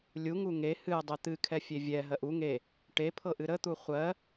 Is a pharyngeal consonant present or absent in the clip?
absent